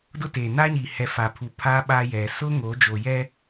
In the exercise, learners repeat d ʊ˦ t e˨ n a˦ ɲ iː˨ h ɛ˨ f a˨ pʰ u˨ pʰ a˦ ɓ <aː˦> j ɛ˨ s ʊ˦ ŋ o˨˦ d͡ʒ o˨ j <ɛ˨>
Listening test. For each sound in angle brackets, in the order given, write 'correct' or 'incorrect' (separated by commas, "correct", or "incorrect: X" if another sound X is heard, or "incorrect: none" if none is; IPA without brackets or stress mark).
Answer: correct, incorrect: ɛ˦